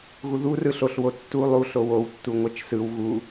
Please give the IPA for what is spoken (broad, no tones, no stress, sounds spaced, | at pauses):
ɣ u ð u r ɯ ɬ o ɬ w o tː u lˠ u ɬ o w o w tː u ŋʷ ɛ t͡ʃ s ɯ w ɣ u